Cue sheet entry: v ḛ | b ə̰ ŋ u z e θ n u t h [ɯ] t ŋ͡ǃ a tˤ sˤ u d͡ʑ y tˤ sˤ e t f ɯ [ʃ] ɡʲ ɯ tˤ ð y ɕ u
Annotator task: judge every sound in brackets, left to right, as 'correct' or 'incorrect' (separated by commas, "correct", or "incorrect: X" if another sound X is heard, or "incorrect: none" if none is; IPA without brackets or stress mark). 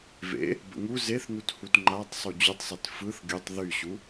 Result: incorrect: u, incorrect: θ